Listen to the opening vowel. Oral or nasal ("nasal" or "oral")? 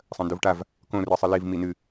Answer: nasal